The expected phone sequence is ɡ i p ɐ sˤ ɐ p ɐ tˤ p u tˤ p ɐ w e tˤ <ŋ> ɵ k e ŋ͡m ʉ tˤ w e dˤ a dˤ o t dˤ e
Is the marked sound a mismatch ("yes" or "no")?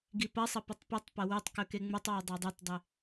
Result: yes